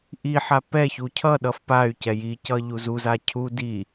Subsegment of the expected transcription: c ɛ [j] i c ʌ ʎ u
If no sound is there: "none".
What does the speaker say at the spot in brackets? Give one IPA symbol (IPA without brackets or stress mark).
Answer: j